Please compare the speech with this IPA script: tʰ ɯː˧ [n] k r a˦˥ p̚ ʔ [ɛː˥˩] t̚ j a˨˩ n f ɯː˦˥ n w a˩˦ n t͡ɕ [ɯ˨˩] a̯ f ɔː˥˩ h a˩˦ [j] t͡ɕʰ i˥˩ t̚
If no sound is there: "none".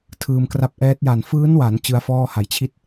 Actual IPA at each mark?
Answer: m, ɛː˦˥, ɯ˦˥, j

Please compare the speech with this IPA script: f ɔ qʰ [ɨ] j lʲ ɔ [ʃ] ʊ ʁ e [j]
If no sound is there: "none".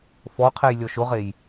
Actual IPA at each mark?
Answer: e, ʃ, j

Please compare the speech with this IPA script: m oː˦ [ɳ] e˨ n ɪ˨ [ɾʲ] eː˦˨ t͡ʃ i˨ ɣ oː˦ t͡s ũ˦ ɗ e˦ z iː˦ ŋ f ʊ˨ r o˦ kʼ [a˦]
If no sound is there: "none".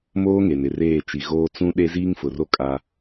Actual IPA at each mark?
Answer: ŋ, r, a˦

